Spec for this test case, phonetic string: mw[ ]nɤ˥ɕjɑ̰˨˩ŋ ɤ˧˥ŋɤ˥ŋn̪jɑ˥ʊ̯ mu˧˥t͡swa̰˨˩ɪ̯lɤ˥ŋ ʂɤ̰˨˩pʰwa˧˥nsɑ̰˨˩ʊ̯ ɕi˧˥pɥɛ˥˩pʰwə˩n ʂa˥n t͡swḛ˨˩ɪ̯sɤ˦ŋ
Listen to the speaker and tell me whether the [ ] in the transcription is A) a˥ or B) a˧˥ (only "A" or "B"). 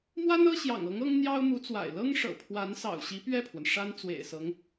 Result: A